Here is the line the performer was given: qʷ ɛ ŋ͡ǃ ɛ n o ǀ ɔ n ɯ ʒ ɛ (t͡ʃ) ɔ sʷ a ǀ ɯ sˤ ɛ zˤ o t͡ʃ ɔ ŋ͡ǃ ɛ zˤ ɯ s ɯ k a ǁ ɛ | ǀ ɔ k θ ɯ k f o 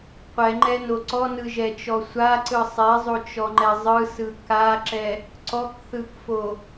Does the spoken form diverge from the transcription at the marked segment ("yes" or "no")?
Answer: no